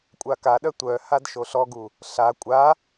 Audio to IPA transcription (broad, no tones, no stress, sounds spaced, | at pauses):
kʷʼ a k a ɗ œ tʷ œ h a d ʃ o ɬ ɔ ɡ u | ɬ a kʷʼ a